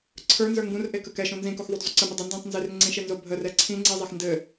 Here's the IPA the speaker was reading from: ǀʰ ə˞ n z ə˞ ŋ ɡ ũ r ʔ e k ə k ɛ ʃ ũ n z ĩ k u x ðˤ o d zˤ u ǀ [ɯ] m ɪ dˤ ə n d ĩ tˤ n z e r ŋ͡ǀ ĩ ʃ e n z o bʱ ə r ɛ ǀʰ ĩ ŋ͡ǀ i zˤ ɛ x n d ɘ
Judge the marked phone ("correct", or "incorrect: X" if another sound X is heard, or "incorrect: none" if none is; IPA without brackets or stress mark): incorrect: ə